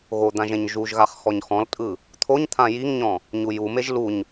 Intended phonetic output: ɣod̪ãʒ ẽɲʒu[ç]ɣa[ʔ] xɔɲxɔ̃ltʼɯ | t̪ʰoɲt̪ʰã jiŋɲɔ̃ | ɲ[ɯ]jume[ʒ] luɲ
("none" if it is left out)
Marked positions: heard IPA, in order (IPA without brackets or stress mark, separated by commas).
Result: ʒ, χ, u, ʒ